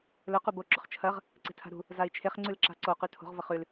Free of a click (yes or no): no